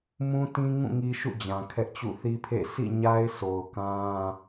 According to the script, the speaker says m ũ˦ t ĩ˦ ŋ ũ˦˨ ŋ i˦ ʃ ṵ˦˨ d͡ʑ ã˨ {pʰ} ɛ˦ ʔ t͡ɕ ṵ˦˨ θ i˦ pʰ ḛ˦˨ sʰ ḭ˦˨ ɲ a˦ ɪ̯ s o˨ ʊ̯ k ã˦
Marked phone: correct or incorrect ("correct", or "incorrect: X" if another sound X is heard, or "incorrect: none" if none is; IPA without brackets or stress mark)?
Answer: incorrect: kʰ